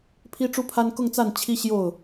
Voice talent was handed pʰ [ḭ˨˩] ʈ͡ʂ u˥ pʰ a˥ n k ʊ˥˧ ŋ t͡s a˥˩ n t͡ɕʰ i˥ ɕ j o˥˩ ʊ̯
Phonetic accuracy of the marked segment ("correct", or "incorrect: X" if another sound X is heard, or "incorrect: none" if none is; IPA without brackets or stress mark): incorrect: i˥